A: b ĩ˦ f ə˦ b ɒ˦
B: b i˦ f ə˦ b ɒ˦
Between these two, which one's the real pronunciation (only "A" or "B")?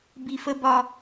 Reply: B